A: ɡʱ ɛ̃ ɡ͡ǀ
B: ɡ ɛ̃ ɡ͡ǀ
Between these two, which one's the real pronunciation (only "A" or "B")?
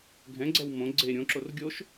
A